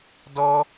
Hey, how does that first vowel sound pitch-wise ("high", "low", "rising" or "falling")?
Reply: high